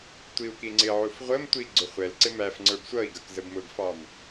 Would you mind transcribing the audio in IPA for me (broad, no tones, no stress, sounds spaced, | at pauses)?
tʷ i u̯ k i ŋ͡ǀ ɪ ʕ u f ʁʷ ə m tʷ i ɡ͡ǀ ʊ χʷ ɛ l ǀ ɪ m æ f ŋ͡ǀ ə˞ b sʷ ʌ i̯ ɡ ʌ k z ə b m ʊ ɡ f ɑ m